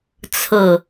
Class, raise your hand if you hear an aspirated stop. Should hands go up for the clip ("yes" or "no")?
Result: yes